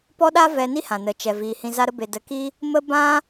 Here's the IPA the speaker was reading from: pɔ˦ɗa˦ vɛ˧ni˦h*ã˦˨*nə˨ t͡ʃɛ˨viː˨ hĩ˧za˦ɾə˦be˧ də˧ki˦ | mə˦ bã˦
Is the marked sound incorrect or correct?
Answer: incorrect